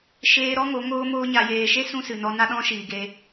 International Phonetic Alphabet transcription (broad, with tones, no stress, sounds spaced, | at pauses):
ʃ eː˧ ɾ ɔ˦ ŋ o˨˦ ŋ oː˦ m oː˦ ɲ a˨ j eː˨ ʃ e˦ s ũ˦ s ɨ˨ n ɔ˧ n a˦ ɗ ɔ̃˦ ʃ iː˨ ɡ e˧